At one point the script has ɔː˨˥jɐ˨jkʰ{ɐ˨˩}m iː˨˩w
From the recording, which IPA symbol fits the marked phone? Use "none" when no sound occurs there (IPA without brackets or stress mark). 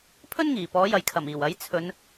ɐ˨˩